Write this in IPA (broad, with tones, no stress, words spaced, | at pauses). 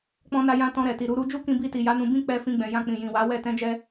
k͡pɔ̃˧na˧jã˧ tɔ̃˧ɾɛ˨ti˨ ɾu˨˦ɾu˦ d͡ʒu˦kĩ˧bi˧ti˨ ja˨˦nũ˧bĩ˦ k͡pɛ˧fĩ˧ɡ͡bɛ̃˨ jã˧k͡pĩ˨ jĩ˨wa˨˦ wɛ˦˨ tɛ̃˧d͡ʒɛ˧